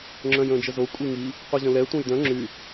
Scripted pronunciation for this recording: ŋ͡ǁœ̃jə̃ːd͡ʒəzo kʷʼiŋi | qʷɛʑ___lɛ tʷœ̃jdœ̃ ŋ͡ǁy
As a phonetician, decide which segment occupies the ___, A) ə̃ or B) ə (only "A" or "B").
A